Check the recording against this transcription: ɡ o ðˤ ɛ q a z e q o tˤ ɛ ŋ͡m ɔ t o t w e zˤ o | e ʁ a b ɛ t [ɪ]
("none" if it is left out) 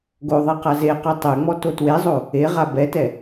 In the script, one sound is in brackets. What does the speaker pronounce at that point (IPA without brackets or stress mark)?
ɛ